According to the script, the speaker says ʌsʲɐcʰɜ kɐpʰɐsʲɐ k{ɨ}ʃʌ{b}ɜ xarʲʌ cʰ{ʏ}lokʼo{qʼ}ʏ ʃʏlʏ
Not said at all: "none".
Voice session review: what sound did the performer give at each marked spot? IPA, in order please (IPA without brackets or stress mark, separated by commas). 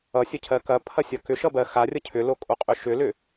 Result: ʏ, b, ʏ, qʼ